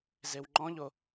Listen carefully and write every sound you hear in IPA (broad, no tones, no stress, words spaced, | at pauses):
zewŋ͡ǃɔ̃ʎo